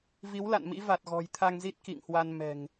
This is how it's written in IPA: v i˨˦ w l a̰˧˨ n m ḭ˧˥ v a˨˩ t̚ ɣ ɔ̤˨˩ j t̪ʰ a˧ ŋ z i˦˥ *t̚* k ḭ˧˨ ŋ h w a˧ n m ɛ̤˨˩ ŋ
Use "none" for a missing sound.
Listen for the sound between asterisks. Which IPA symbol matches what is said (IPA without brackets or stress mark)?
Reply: t̚